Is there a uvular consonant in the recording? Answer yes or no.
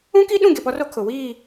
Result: no